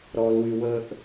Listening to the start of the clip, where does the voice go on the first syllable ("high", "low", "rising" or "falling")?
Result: low